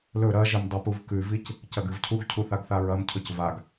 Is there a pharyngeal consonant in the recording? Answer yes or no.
no